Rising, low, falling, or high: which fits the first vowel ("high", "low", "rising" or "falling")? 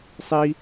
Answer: high